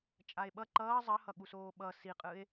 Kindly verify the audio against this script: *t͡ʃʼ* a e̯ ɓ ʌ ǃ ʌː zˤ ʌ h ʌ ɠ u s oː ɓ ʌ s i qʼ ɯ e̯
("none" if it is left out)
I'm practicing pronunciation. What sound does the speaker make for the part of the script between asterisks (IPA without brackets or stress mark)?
t͡ʃʼ